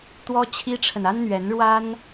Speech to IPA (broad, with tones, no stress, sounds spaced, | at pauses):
t̪ w ɔ˥ t͡ɕʰ i˥ ʈ͡ʂʰ ə˨ n a˥ n n̪ ɥ ɛ˧˥ n ɻ w a˥ n